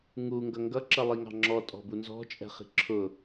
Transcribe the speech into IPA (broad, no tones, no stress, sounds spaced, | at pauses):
ŋ u ŋ ɡ ʌ ŋ ɡ ʌ ǁ ʌ lˠ i ŋ ɑ̤ ŋ͡ǁ ɔ tʼ ɔ̤ b u n z ɔ̤ t͡ʃʼ ɛ̤ χ i̤ ǁʰ ʊ